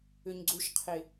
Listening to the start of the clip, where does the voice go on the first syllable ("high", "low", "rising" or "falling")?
low